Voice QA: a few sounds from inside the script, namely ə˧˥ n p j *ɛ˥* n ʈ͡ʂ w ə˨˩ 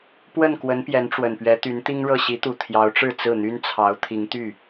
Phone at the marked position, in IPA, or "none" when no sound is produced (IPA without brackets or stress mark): ɛ˧˥